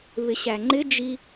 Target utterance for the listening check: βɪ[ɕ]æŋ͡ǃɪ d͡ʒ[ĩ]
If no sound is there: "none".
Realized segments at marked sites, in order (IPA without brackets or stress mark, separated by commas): ɕ, i